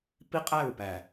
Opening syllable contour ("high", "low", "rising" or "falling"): high